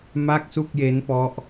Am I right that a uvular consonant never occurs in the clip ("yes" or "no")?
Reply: yes